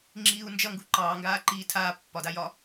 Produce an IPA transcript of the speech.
ŋ͡ǁ iː u̯ n d͡ʒ ʌ ŋ ɡ u ǃ ɑː ŋ ɡ aː ǃ iː tʰ aː pː ɒ d a j ɒ

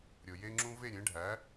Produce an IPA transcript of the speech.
ɾʲ o˩ j e˦ ŋ͡ǁ ũ˦ v e˥˨ ɾʲ ẽ˩˥ ɖʱ æ˩˥

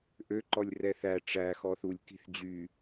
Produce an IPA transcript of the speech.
ʔ ø ǃ ɔ lʲ r ɛ θ æ ʈ͡ʂ æ x ɔ θ u lʲ k i̤ θ d͡ʑ y

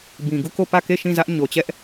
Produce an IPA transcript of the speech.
b ĩ˨ ɡ u˦˨ k o˦˨ p ä˦˨ k e˦˨ ʃ ĩ˦˨ z ä˦ ʔ ɲ o˨ t͡ɕ ɛ˦ ʔ

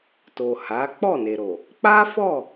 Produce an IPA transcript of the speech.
t o˨ h a˨˦ k͡p ɔ˦˨ n e˨ ɾ o˨ | k͡p a˦ f ɔ˦˨

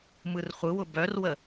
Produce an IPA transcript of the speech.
m ɯ r χʷ ɯ w ʊ b œ r w ə

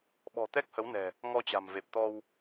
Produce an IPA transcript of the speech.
ɓ ɔ̤˨˩ t̪ ɛ˦˥ k̚ h ə˨˦ w n ɛ̤˨˩ | ŋ ɔ˧ t͡ɕ a̤˨˩ m v e˨˩ p̚ t̪ ɔ˧ w

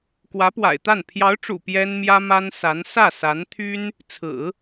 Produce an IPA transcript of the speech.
k w ä˧˥ p w a̰˨˩ ɪ̯ t̪ a˥˩ n pʰ j ɑ˧˥ ʊ̯ ʈ͡ʂ ṵ˨˩ p j ɛ˥ n m j ä˥ m a˥ n s a˧˥ n s ä˥˩ s a˧˥ n t̪ʰ y˥ n | t͡sʰ ɹ̩˨˩˦

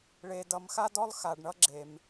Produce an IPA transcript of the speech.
ɭ e˨ d ʌ˨ m x a˦ d ɔ˦ lˠ x a˨ ɖ ɳ ʌ˦ ɡ͡ǁ e˨ m

